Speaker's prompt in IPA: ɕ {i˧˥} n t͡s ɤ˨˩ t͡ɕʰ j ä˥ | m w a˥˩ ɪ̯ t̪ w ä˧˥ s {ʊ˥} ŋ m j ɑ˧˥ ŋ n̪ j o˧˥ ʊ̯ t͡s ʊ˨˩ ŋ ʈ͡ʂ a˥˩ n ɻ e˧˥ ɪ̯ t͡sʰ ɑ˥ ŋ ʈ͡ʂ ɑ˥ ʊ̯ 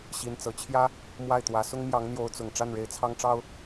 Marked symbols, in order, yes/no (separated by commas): yes, yes